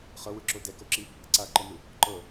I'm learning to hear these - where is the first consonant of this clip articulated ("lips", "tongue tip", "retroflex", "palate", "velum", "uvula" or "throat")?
uvula